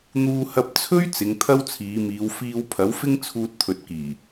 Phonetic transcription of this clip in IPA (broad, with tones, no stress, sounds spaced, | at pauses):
n̪ uː˧ h ɐ˧ p̚ t͡sʰ ɵ˥ ɥ t͡s ɪ˨˧ ŋ t̪ʰ ɐ˥ w t͡sʰ iː˨˧ m iː˨˧ w f iː˧ w pʰ ɐ˨˥ w f ɪ˥ ŋ t͡sʰ uː˧ t̚ t̪ʰ ɵ˨ t̚ k iː˨˩